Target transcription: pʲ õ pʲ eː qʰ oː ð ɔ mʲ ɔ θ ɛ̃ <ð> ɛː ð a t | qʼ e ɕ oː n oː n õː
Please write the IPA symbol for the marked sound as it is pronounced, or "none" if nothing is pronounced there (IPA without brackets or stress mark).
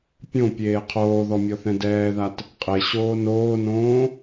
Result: d